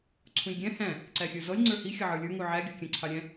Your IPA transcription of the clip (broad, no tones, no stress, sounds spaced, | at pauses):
ǀʰ ũ lʲ ɡʲ æ̃ h æ̃ | ǀ æ xʲ ə˞ z ɔ lʲ ŋ͡ǀ ə˞ h i xʲ ʌ ʕ ə˞ lʲ ə˞ ŋ u ʕ æ ɡʲ ɔ kʲ æ̃ ǀʰ ɑ ɾʲ æ̃